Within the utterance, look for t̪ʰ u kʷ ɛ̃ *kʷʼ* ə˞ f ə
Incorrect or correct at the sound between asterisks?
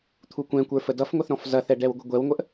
incorrect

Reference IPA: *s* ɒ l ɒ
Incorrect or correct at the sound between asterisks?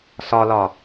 correct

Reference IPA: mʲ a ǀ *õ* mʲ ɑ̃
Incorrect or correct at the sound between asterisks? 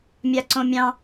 correct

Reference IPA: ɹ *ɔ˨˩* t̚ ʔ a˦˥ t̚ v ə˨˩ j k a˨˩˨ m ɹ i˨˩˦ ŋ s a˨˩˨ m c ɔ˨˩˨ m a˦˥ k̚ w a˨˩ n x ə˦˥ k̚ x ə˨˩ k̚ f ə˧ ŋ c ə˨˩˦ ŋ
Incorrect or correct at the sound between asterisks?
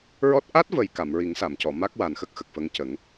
incorrect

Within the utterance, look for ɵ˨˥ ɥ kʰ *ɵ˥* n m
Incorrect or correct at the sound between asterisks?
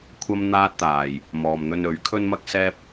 correct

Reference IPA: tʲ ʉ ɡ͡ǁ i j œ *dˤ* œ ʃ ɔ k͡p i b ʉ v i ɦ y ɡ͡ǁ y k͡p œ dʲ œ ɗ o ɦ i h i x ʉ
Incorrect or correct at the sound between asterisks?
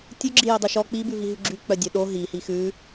correct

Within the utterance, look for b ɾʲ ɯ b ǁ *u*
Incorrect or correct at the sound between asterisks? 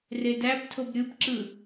incorrect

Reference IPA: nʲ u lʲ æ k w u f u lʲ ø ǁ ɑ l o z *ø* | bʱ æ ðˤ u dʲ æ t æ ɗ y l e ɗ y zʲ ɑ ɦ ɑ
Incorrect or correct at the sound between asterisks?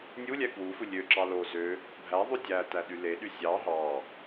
correct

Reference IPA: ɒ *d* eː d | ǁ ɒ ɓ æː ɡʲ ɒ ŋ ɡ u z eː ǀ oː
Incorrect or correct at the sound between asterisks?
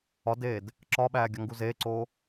correct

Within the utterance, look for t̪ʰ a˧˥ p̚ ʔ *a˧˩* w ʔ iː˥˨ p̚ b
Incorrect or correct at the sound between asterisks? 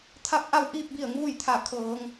incorrect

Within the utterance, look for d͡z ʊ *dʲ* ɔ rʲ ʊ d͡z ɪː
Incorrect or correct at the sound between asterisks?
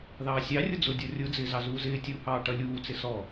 correct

